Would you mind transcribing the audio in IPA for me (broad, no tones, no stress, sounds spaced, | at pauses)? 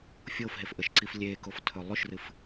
fʲ o f ɦ e f ʔ ə ʃ ǀ i f lʲ e k o f tʰ ɵ lˠ ʉ ʃ r ɨ f